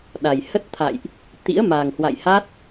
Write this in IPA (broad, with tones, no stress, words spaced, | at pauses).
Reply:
ɗa˨˩jhə˦˥t̚t̪ʰa̰˧˨jʔ | t̪ḭ˧˥ə̯ma˨˩ŋhwa̰˧˨jhaː˦˥t̚